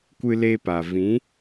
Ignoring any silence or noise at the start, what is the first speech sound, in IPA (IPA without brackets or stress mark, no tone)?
kʷ